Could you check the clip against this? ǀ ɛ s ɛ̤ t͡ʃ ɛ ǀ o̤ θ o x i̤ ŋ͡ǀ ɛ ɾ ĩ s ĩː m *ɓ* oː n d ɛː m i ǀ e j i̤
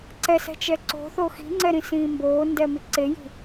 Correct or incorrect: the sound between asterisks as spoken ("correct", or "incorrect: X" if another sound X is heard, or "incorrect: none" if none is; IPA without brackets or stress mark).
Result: incorrect: b